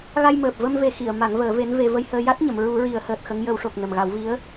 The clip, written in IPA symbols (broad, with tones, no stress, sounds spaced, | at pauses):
ɣ a˧ j m əː˨˩ p̚ v ə˧ m v e˨˩˦ x i˨˩˨ ə̯ m a˨˩˦ ŋ v əː˨˩˦ v e˧˥ n v e˧ v ə˧ j h əː˧ j a˦˥ t̚ ɲ ə˨˩˨ m ɹ u˨˩˦ ɹ i˨˩˦ ə̯ h əː˨˩ t̚ x ə˧˥ ŋ j ə˨˩˦ w ʂ o˨˩ k̚ n ə˨˩ m ɣ a˨˩˦ w v i˧˥ ə̯